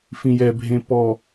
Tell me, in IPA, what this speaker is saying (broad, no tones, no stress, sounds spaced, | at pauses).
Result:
f ĩ j ɛ bʱ ẽ p ɔ